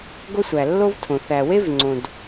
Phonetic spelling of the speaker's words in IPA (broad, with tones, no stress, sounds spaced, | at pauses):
ɡ o˥ sʷ æ˩ lː o˥ v tʰ õ˩ θ æ˩ w e˥ v ŋ͡ǀ õ˩ d